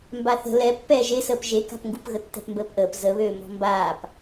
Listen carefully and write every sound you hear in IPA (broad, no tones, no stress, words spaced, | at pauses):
mbaθə̤ lɛ pːɛːʒesəːp ʒeka̤pŋɡup ɣətːɛ̤pmbəːpʔəːp zəβøː mɔ̤mbaːp